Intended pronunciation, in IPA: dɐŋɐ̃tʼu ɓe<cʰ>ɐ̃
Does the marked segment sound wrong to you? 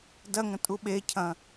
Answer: no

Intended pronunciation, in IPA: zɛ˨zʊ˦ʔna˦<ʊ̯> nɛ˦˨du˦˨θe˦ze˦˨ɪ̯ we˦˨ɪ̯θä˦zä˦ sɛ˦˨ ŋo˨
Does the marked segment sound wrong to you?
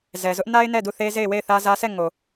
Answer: yes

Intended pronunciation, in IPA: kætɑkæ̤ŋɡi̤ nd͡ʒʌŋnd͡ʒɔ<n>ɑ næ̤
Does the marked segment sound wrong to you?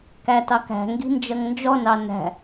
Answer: no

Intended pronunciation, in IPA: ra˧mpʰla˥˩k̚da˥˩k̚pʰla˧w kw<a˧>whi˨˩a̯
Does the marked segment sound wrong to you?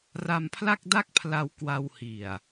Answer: no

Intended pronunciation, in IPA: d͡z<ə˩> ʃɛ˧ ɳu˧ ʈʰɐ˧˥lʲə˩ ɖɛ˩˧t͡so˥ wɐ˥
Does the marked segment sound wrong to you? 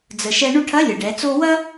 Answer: no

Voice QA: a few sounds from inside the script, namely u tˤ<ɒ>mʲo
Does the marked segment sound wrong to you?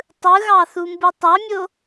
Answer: yes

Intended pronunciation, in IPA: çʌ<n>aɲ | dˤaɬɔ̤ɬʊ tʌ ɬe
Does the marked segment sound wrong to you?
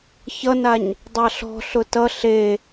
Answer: no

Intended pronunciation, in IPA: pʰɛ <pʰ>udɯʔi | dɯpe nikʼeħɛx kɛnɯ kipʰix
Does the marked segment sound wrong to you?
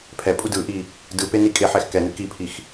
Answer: yes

